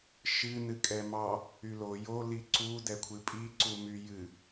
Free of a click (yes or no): no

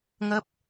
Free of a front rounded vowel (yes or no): yes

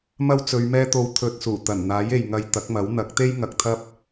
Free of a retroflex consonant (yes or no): yes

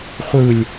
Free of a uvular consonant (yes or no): no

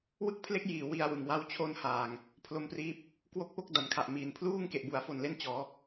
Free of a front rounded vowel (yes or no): yes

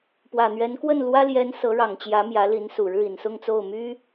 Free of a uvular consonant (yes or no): yes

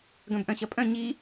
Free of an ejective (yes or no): no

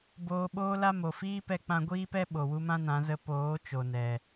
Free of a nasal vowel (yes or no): no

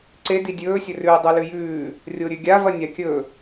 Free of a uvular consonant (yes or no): yes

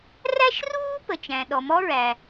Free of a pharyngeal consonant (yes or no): yes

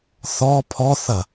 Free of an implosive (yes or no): yes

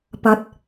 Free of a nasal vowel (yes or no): yes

